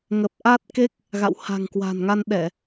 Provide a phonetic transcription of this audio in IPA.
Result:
ŋ ə˨˩ p̚ ʔ a˦˥ t̚ k e˦˥ k̚ | ɣ a̰˧˨ w h a̤˨˩ ŋ k w a̤˨˩ n ŋ a˧ n ɗ ɛ˧˩˨

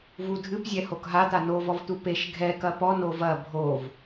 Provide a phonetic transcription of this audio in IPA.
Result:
v u dʱ ɨ p zʲ ɛ h o k ɦ a t̪ a n o v ɔ v t̪ u p e ʃ ɡʱ ɛ k ɐ p ɔ n o v ɐ bʱ o v

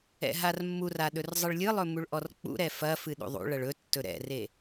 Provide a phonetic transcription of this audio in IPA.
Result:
ɛ̰ ɦ a r mː u r a ɗ ɵ r zˤ ɨ ɭ lʲ ɨ lˠ ɵ m u ɭ ʔ ɔ r k͡p ṵ ɾ ɛ f ɐ f ɨ ɗ ṵ ðˤ ṵ ɭ ɐ ɭ ɵ tː ɵ ɾ ɛ̰ r e

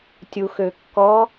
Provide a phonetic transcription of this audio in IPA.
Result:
tʲ u x ø kː ɔ

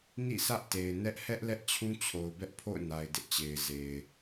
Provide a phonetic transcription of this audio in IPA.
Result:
n ḭ˦˨ s ä˦ ʔ t e˨ ɪ̯ n ɛ˦ ʔ h ɛ˦ ʔ l ɛ˦ ʔ t͡ɕʰ ũ˦ t͡ɕʰ o˨ ʊ̯ b ɛ˦ ʔ pʰ o̰˦˨ ʊ̯ n a˨ ɪ̯ d ɪ˦ ʔ t͡ɕ e˨ ɪ̯ z e˨ ɪ̯

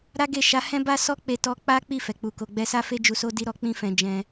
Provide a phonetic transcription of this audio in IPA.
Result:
ɾ a˦ ɡ e˦˨ ʃ a˨˦ h ɛ̃˦ b a˦ s ɔ˦ k͡p e˧ t ɔ˧ k͡p a˦ k͡p i˦˨ f ɛ˨ k͡p u˧ k o˧ ɡ͡b ɛ˧ s a˦ f e˦ d͡ʒ u˧ s o˦ d i˦ ɾ ɔ˧ k͡p ĩ˦ f ɛ̃˧ d͡ʒ ɛ̃˧

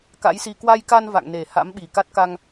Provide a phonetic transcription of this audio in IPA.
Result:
k a̰˧˥ j s i˧ k w a˧ j k a˧ n v a̰˧˨ ŋ n e˨˩ h a̰˧˥ m ɓ i˨˩ k a˦˥ t̚ k a˧ ŋ

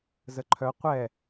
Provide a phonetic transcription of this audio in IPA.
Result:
z ə ǃʰ œ qʷ ɛ

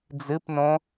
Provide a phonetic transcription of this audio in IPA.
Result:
d͡z ɨ p n õ

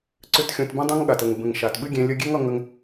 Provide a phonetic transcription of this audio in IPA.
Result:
ǀ ʏ˧ t xʲ õ˧ t b ũ˦ dˤ õ˦ ŋ ɠ a˨ t ə˨ ŋ b ə̃˨ ŋ ʃ a˨ t ɓ ɨ˦ ɡʲ ẽ˧ lʲ ə˧ ɡʲ e˦ ŋ ʌ˧ ŋ ə˧ ŋ

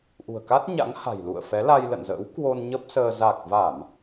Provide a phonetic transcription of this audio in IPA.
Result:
ʔ ṳ˨˩ ə̯ k a˦˥ t̚ ɲ a̰˧˥ ŋ h a̤˨˩ j l ṵ˧˨ ə̯ f ɛ˨˦ l a˧ j l ə̰˧˨ n z ə̰ː˧˥ w k w o˧ n ɲ ə˦˥ p̚ s əː˧ z a˨˩ k̚ v a˧˩˨ m

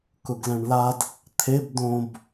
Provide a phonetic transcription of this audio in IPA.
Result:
k ʊ ɡ l ɛ̃ ɳ l a d | t̪ʰ e b d õ b

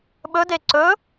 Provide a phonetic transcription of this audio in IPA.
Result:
ɓ ɵ d e ǀ ɵ

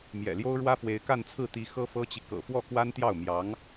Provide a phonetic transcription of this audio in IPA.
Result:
m j ɛ̰˨˩ l j o˥ ʊ̯ ɻ w ä˥ f w e˧˥ ɪ̯ k a˥˧ n t͡sʰ ɹ̩˥˩ t̪ i˧˥ x ɤ˥ f ɤ˥ t͡ɕ i˨ k ɤ̰˨˩ f w ɔ˥˩ k w a˥ n t̪ j ɑ˥˩ ʊ̯ m j ɑ˧˥ ŋ

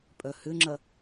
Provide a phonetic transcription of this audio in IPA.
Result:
pʼ œ h ʏ ŋ͡ǁ ɐ

